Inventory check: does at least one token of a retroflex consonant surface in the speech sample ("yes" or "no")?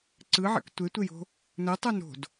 no